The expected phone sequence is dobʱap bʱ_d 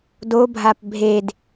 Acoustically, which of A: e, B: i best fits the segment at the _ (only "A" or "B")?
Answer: A